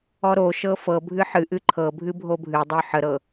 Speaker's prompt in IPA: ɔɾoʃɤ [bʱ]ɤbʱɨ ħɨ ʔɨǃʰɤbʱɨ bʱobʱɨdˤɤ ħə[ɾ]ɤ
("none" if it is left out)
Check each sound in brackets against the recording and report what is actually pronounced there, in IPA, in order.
f, ɾ

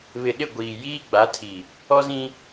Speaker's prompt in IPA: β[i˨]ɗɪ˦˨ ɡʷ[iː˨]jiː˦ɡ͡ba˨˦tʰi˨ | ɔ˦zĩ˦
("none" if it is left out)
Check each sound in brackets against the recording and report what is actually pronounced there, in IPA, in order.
ɪ˨, iː˨

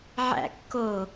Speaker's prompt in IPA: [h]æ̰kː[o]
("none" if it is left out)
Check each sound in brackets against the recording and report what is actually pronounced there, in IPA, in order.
ʕ, o

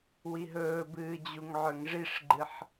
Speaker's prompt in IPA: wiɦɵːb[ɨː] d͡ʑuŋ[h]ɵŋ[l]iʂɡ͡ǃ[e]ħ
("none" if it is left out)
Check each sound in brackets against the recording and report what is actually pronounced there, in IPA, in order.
ɨː, ʕ, ʐ, ɨ

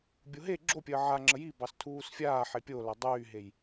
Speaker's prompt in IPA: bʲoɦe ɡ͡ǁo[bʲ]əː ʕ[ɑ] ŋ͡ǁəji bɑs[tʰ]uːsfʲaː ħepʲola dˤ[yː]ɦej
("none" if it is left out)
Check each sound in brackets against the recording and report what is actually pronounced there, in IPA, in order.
pʲ, a, tʰ, yː

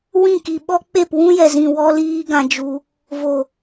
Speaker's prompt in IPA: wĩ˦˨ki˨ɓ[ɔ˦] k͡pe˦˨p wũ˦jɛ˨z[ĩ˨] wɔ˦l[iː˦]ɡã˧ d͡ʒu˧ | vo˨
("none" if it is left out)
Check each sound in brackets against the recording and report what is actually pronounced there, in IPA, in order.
ɔ˦, ĩ˨, iː˦

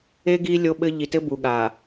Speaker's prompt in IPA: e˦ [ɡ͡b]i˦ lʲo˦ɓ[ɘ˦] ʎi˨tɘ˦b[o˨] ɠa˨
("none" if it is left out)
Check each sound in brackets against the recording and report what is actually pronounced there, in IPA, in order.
ɡ, ɘ˦, u˨

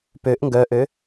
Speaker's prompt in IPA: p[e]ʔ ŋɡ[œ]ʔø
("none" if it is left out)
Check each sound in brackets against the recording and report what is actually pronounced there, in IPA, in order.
ø, œ

